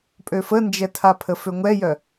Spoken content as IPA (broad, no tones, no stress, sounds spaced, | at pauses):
pʼ ø f ə n d͡ʒ ɛ tʰ a pʰ ə f ø ŋʷ ɛ j œ